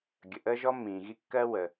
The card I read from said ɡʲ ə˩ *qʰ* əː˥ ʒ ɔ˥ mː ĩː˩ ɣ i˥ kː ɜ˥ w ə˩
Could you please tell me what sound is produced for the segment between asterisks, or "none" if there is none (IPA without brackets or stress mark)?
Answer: ʔ